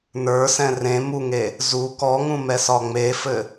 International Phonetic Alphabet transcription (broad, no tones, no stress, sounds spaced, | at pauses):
n ə˞ s ɛ̃ r ẽ m u ŋ e | z u k ɔ ŋ ũ m ɛ s ɒ ŋ͡m e f ɘ